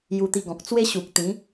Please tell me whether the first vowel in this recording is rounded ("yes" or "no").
yes